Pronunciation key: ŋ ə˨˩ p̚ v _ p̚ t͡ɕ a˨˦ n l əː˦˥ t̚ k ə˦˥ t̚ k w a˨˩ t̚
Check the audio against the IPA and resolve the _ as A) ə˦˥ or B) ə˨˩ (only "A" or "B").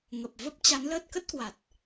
A